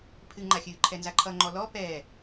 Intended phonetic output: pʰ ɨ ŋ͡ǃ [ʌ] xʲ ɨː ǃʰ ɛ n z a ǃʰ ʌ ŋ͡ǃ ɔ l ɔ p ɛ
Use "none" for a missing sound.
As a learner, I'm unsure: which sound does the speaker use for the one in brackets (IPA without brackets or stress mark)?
a